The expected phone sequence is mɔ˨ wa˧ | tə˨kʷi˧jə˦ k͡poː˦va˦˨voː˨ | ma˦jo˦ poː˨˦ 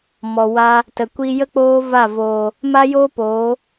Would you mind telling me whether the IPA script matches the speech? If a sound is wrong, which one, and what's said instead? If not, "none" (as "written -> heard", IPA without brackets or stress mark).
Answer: none